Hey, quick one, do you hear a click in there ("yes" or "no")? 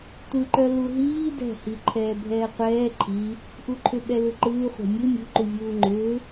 yes